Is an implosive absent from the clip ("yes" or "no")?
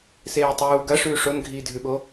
no